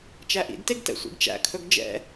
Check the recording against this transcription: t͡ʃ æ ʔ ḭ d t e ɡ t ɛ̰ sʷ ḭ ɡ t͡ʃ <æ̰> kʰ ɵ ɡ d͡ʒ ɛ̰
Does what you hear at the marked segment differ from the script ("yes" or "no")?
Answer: no